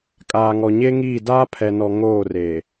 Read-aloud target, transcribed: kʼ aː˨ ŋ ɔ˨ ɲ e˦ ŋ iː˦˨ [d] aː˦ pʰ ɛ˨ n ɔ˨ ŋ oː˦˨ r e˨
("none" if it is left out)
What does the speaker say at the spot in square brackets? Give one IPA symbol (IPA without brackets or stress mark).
d